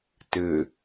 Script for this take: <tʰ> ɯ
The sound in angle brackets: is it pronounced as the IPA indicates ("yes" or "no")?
no